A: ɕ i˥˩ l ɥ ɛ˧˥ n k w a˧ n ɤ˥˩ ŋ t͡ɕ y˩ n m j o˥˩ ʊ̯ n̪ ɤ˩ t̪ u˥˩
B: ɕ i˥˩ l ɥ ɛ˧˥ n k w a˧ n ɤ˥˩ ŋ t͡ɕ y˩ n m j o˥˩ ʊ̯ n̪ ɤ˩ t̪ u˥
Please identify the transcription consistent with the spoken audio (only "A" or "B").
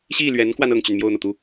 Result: A